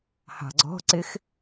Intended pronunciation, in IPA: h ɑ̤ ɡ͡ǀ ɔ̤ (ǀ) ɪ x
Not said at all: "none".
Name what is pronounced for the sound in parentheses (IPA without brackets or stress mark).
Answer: ǀ